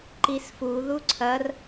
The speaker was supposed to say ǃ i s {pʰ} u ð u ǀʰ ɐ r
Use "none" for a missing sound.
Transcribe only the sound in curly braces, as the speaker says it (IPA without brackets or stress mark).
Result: f